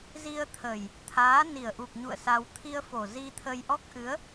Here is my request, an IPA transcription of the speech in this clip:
zi˧ə̯t̪ʰə˨˩j | t̪ʰaː˨˦ni˨˩ə̯ʔu˨˩k̚ɲṵ˧˨ə̯ sa˧w t̪ʰi˧ə̯fo˨˩zi˧t̪ʰə˧j ʔɔ˦˥k̚ʔɨ˨˦ə̯

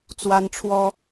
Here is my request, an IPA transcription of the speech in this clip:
t͡swa˦nʈ͡ʂʰwɔ˦

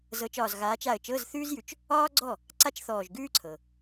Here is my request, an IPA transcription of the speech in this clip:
zɤ˨˦t͡ʃɒː˧˩z ɣaː˨˦t͡ʃa˧˩ə̯ t͡ʃɤ˧˥˧zθʉː˥zjʉ˨˦t͡ʃ | ɒː˥ɡ͡ǀɔ˥˩ | ǀa˥t͡ʃθɔː˧˩ʒɡʉː˥ǀʰɤ˩

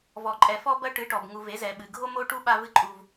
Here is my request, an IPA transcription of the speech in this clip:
vɔ˨ǃʼɛ˨ fɔ˦bɐ˦ʈɨ˨˦ʈɔ˨b ŋu˨ve˨˦zɛ˨ɓɨ˨ ɡʱo˦mo˦ʈu˦ ɓa˦vɨ˦ ǃʼu˦v

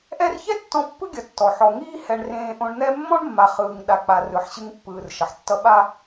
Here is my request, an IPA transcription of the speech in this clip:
ʔɛ˦rçɛ˥ tːɔ̃˦pːɯ˥ɡʲʌ˨ tːɔ˩ħɔ˨ ŋiː˦hɛ˨ɳrẽː˨ʔõ˨ɳ n̪ɛ˦mːɔ̃˥ɳ mːa˨χɯː˨ŋ ɗa˨k͡pa˨ rɯ˩ħɕɯ˨ŋ pːɯː˩r ʃʌ˩ħtːʌ˦ ɓa˦

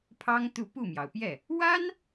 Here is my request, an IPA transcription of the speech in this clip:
pʰɑ˥ŋ t̪u˥˧ pu˥˩mjɑ˩ʊ̯pjɛ˥˩ | wa˥n

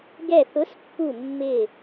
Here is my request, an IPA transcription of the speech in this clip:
ɡɛ˧˩θʊ˨˥spːu˧˩ mːɪ˧˩

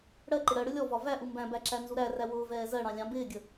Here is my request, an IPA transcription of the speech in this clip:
ɽɜǃɪ ɽɜɽʊ lʲɔvɒ væʔu mbæ̃bæ ǁænzuɾæræ wʊːvɛː zɜɽɑ̃ lʲɑ̃ bɪːɡʲə

